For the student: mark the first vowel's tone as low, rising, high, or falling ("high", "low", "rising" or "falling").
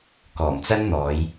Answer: low